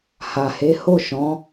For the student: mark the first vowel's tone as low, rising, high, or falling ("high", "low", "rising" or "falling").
low